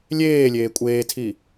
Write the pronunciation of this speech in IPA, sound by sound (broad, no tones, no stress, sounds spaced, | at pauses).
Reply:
lʲ eː lʲ eː kʷʼ eː tʰ i